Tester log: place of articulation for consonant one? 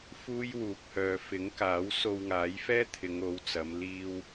labial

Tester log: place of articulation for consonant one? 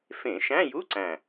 labial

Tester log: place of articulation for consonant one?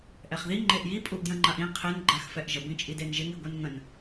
glottal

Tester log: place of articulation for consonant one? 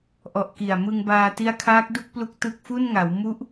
glottal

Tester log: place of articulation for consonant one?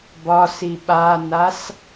labial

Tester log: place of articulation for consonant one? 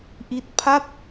glottal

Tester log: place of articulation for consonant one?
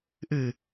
glottal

